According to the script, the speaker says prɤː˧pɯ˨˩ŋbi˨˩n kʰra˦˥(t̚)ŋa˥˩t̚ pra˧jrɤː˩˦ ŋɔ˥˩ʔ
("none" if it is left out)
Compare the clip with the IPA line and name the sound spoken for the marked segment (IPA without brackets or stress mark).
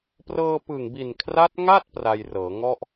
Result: t̚